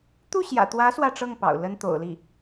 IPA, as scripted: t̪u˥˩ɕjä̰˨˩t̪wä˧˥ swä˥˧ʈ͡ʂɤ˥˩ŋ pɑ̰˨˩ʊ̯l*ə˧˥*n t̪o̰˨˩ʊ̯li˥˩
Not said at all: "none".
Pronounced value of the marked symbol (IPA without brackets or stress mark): ə˥